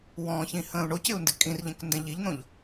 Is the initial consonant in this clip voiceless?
no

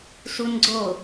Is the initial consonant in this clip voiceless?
yes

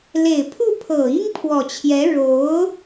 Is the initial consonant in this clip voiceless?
no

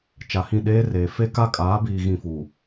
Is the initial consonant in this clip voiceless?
yes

